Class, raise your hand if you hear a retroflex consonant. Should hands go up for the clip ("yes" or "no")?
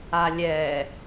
no